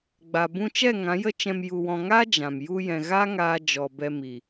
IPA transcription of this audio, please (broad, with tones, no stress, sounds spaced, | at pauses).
ɡ͡b a˨ b ũ˧ t͡ʃ ɛ˦˨ ŋ ã˨˦ j ə˦ t͡ʃ ɛ̃˧ m j u˨ w ɔ̃˨ ŋ a˦ d͡ʒ ã˨ m j u˧ j ɛ̃˨ ɣ a˦ ŋ aː˧ d͡ʒ ɔ˨ b ɛ˧ m i˨